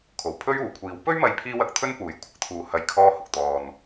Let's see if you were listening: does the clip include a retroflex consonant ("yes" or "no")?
no